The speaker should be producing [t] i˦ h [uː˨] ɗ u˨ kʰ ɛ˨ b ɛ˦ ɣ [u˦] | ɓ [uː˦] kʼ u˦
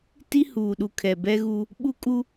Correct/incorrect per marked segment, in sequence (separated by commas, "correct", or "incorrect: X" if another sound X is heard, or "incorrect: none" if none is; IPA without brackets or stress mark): correct, correct, correct, incorrect: u˦